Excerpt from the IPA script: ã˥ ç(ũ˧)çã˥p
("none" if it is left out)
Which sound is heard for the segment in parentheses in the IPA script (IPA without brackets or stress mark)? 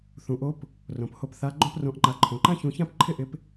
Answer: ũ˧